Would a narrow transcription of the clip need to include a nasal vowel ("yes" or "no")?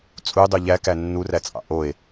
no